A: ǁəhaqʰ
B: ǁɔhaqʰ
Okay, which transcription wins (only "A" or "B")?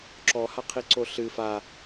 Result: B